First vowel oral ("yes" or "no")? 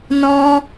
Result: no